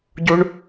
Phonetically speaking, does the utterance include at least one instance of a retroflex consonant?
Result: yes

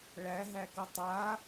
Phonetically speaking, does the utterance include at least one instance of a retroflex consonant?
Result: yes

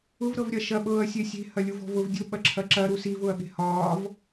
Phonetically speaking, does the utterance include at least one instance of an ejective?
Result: no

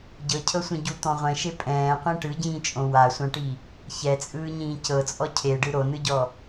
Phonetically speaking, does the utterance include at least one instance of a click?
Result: no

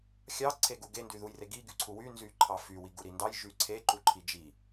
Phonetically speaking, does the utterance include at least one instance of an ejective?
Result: no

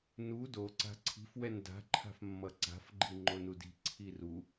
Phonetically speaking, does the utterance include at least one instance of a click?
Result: yes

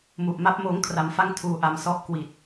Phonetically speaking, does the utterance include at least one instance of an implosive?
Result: no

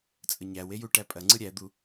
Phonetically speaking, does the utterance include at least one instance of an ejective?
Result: yes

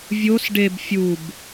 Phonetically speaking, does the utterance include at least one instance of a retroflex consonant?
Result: yes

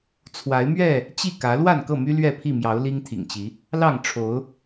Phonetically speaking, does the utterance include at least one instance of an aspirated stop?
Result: yes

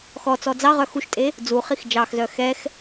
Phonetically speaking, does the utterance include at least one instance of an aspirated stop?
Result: no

